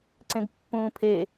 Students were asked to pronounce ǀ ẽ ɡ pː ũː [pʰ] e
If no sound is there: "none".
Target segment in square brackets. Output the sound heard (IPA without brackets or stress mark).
pʰ